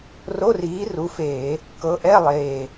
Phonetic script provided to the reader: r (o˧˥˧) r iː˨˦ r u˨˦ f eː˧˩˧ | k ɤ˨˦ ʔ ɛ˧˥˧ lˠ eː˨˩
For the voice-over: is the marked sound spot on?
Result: yes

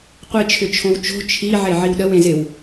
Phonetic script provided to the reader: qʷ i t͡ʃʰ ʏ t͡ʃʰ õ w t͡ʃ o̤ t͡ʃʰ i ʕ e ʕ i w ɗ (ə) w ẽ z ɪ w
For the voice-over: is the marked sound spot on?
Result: yes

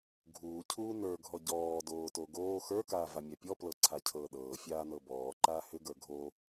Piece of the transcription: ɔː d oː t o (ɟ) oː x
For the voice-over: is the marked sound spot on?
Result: no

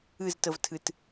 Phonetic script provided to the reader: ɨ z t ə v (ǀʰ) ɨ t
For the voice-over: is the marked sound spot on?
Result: no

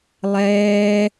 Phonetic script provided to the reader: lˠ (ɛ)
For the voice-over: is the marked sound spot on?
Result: no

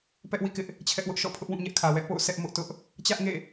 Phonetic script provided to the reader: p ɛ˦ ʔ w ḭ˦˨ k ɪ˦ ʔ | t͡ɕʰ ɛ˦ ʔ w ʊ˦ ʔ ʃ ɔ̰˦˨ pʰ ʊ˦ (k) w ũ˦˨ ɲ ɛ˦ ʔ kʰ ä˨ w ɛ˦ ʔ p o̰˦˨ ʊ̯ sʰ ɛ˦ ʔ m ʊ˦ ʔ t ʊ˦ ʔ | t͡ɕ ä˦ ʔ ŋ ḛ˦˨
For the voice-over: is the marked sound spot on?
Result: no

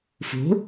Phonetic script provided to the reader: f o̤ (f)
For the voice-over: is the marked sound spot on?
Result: no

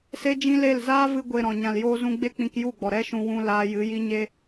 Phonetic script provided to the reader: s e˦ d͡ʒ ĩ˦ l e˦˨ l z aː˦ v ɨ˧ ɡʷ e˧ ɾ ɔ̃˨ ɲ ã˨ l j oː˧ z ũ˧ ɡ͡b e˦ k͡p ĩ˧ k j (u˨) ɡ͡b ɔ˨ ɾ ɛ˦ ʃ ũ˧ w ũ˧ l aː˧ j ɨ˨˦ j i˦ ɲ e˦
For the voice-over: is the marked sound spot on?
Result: no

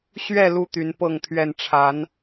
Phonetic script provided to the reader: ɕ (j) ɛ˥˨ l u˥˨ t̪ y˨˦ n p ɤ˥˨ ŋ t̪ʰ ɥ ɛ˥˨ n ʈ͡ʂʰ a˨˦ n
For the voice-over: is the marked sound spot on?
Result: no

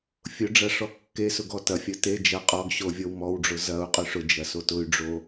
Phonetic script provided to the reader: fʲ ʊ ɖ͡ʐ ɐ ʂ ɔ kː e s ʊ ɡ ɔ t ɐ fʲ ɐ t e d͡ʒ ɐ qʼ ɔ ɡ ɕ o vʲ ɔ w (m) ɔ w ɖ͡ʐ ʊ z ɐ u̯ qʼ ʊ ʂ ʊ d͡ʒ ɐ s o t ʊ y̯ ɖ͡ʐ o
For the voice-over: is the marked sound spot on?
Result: yes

